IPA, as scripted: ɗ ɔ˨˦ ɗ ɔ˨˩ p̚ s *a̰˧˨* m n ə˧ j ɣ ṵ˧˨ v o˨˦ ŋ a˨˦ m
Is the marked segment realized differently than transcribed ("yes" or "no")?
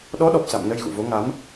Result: no